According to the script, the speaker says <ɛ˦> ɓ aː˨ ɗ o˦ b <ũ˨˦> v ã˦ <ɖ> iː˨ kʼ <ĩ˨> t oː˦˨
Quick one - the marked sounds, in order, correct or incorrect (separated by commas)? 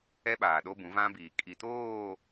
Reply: correct, correct, incorrect, incorrect